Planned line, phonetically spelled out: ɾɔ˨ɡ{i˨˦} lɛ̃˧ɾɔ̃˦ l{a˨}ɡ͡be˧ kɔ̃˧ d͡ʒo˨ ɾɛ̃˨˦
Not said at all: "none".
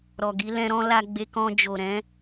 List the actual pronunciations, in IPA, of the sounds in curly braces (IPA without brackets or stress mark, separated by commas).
i˨˦, a˧